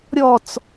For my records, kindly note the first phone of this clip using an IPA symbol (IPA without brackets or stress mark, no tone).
ɾʲ